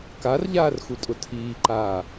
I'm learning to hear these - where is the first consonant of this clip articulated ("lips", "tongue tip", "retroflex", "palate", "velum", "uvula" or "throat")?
velum